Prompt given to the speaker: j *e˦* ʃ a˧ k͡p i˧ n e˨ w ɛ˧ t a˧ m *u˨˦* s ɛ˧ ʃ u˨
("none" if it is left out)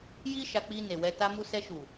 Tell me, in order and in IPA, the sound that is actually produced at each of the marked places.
i˦, u˧

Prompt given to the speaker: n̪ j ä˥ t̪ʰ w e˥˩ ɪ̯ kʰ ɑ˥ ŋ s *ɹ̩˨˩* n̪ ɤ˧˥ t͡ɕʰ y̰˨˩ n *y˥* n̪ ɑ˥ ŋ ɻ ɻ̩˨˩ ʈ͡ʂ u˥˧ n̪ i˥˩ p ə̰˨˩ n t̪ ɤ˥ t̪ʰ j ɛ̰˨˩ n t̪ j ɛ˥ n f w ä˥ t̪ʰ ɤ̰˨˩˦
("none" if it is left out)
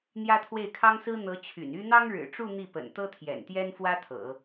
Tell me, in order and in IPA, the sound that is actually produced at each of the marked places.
ɹ̩˥, y˥

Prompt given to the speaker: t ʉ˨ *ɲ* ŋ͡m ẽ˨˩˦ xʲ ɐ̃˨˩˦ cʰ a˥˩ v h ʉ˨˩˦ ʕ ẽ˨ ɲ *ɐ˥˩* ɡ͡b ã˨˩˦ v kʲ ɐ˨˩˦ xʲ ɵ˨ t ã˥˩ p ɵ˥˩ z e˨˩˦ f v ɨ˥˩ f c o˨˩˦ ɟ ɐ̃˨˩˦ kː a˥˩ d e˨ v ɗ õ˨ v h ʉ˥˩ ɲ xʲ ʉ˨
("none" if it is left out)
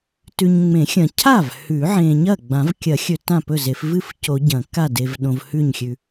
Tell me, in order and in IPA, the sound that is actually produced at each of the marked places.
ɲ, ɐ˥˩

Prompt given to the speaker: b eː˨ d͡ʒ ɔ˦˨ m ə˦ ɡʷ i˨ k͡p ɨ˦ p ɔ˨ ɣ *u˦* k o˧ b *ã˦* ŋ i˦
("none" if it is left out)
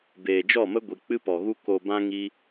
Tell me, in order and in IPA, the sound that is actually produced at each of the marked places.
u˦, ã˦

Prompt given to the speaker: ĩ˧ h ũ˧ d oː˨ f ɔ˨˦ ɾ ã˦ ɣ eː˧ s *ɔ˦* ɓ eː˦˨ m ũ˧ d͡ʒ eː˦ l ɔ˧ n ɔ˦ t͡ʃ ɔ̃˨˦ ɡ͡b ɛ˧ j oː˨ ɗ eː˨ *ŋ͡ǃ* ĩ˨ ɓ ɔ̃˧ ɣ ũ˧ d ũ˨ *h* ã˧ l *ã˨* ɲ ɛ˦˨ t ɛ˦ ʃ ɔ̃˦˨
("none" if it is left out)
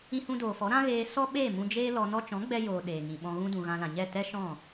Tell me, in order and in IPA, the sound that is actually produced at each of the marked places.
ɔ˦, ŋ, ɣ, ã˨

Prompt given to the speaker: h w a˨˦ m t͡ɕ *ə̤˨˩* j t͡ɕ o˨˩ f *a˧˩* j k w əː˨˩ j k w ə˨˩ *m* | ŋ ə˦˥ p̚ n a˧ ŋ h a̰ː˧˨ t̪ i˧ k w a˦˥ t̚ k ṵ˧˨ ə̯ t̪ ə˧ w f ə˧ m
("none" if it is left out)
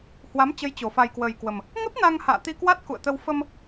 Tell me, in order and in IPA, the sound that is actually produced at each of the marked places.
ə˨˦, a˨˩, m

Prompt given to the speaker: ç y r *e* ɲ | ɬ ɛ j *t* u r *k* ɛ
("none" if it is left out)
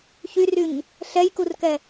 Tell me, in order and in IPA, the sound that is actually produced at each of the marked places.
y, k, k

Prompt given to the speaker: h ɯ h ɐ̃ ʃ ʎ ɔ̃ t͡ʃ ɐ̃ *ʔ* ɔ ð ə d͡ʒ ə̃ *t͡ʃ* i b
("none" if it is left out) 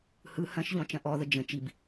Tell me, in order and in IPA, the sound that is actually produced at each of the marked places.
ʔ, t͡ʃ

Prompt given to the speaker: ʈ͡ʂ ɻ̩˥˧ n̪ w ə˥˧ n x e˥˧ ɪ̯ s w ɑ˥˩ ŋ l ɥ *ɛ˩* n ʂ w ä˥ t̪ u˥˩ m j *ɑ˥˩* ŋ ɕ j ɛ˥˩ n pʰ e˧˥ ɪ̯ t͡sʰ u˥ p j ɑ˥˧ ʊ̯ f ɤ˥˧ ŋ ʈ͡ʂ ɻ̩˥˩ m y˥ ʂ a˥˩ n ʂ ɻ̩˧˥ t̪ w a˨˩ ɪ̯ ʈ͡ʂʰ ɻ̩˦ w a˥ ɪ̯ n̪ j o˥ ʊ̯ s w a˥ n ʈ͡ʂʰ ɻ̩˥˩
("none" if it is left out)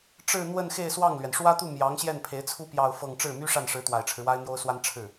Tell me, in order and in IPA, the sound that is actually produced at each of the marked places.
ɛ˩, ɑ˧˥

